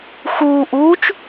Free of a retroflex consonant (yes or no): yes